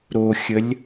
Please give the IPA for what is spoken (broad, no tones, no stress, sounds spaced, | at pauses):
ɾ o xʲ ə lʲ